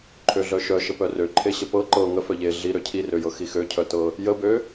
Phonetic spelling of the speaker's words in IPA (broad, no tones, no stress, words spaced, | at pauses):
ǃʰøɮœʃœʃə pœrø ǃʰeɕəpɤ ǃɤ ŋəfœ ʎe ɮiɾø cʰirøjɤ xixøcʰœtɤ | jəbø